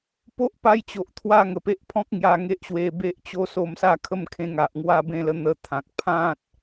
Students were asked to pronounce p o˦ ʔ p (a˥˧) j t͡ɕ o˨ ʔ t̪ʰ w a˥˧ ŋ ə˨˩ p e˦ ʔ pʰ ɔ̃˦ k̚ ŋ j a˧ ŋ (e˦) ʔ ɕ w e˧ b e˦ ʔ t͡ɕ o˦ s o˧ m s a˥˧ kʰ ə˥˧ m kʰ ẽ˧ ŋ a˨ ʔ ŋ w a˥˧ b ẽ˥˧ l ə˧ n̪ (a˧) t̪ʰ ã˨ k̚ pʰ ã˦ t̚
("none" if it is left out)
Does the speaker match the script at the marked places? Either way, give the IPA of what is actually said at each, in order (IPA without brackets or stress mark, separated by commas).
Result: a˧, e˦, ə˧